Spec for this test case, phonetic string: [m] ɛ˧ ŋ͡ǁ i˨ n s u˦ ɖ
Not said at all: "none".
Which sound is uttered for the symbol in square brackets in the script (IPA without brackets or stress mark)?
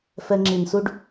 f